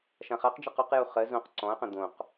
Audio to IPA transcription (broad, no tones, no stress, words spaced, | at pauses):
ʃãχaqd͡ʒɜq oqju χɜ zõq ǀɔ̃ɐ̯qə̃ d̪õq